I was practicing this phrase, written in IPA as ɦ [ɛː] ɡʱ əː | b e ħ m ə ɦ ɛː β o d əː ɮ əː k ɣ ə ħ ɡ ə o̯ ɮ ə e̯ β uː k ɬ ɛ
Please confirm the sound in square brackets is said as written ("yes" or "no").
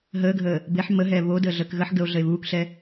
no